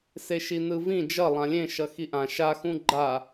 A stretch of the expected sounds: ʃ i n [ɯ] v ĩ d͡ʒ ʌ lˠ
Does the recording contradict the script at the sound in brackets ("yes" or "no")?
no